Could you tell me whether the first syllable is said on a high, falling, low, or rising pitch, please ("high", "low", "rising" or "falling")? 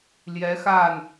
rising